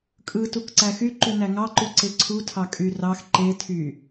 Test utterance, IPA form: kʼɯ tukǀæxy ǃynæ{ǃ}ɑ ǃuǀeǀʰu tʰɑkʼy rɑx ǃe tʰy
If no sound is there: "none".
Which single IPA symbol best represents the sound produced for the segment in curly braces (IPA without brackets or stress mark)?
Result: ŋ